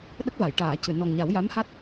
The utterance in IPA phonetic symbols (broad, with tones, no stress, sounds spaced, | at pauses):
ɗ ə˦˥ k̚ v a˨˩˨ j ʈ aː˨˩˨ c ɨ˨˩˨ n ɔ˨˩ ŋ ɲ a˨˩˦ w j a˧˥ m h a˦˥ t̚